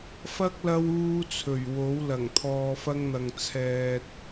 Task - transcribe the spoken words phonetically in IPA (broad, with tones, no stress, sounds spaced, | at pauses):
f ɐ˥ k̚ l ɐ˥ w uː˥ t͡sʰ ɵ˨˩ ɥ w o˨˥ w l ɐ˨˩ ŋ t̪ʰ ɔː˧ f ɐ˥ ŋ n̪ ɐ˧ ŋ t͡sʰ ɛː˨ t̚